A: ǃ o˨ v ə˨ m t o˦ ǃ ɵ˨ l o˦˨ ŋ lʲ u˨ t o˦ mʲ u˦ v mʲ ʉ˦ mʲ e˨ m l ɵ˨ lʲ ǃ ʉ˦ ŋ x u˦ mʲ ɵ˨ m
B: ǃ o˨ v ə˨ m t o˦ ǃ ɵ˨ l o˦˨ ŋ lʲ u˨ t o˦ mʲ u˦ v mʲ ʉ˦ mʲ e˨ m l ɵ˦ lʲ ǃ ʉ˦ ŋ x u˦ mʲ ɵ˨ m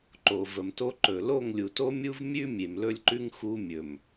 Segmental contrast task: B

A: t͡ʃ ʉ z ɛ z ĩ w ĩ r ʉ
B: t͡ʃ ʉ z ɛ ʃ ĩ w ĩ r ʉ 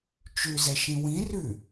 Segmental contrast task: B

